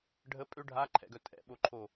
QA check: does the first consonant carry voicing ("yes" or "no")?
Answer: yes